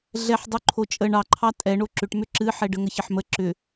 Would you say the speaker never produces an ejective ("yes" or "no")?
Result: no